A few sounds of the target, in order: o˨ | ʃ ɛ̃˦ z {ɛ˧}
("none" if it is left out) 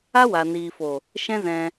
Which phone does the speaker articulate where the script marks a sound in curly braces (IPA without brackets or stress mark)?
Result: ɛ̃˧